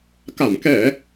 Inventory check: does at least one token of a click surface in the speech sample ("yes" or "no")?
no